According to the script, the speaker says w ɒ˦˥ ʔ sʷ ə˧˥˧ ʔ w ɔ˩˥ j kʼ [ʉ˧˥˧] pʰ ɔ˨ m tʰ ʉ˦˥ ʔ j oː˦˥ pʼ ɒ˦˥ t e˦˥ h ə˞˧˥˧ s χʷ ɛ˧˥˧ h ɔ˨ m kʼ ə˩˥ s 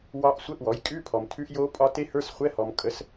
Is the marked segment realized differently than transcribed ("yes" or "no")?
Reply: no